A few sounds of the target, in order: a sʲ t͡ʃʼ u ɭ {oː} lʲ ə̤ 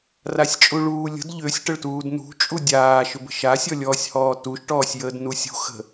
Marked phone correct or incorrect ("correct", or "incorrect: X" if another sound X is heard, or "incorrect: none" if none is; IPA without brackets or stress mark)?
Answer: incorrect: uː